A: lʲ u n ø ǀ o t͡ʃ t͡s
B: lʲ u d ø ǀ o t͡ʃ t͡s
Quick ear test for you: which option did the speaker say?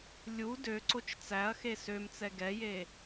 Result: B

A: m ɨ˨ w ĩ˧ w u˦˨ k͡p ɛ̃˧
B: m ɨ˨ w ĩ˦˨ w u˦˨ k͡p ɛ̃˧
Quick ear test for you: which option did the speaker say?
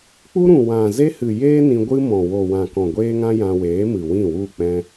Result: B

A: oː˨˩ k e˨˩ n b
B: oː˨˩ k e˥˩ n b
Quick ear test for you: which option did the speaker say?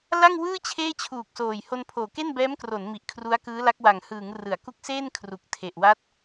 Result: B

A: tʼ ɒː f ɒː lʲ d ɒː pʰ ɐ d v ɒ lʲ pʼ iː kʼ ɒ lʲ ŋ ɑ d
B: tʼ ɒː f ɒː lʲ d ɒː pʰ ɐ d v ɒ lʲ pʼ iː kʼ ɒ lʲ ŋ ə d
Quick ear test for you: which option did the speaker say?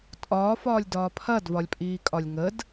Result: B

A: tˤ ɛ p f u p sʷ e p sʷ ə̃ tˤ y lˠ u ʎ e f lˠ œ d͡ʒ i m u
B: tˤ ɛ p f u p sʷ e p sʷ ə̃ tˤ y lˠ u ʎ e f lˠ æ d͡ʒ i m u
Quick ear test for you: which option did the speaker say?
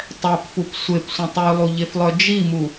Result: A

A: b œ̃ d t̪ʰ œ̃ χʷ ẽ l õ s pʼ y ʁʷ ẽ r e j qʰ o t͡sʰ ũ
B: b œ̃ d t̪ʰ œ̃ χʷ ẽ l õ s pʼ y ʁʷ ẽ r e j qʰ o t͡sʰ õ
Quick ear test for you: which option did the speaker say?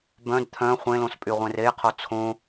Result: B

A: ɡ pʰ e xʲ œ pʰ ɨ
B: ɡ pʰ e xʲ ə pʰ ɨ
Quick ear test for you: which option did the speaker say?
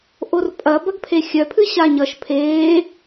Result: A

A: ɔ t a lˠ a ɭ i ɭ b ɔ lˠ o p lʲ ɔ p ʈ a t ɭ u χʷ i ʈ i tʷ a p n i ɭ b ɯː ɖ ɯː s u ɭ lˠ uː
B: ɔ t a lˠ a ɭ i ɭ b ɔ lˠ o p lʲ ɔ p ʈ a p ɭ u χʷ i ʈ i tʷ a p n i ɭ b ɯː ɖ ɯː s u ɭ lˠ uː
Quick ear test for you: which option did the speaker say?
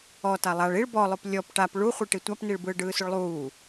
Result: B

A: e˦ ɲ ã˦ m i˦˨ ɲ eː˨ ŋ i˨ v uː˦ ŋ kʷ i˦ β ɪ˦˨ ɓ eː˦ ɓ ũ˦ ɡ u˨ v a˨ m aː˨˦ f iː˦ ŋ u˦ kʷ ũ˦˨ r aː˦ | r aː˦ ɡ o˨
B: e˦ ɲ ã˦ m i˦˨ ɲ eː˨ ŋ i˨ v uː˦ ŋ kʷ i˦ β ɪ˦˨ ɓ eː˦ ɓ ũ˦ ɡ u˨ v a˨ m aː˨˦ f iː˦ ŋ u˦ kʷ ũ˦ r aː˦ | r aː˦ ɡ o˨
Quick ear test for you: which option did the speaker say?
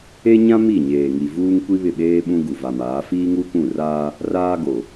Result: A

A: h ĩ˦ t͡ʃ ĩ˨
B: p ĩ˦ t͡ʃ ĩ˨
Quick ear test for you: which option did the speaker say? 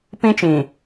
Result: B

